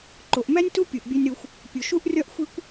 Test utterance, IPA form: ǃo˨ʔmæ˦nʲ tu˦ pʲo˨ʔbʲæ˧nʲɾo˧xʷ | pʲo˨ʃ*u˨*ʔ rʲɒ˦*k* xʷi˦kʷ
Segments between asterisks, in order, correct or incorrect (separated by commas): incorrect, incorrect